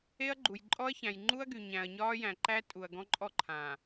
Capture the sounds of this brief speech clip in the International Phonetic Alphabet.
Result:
e˦ ɐ̯ ɡ͡ǃ u˨ j ǃʼ ɔ˦ ɐ̯ ç æ̃˨ j ŋ͡ǃ u˦ ɐ̯ ɡ y˨ ɲ æ̃˨ ɐ̯ ɲ ɒː˦ j æ̃˨ ǃ æ˦ tʼ u˨ ɐ̯ ɡ ɔ̃˦ ǃʼ ɔ˦ ǃʰ ã˨

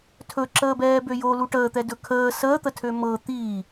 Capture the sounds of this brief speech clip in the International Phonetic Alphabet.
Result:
tʰ ɵ ǁ əː b ɛː b ø j o l u ʈ əː t̪ ɛ d ɵ kʰ əː s əː t̪ ə tʰ ø m ɤ t̪ i

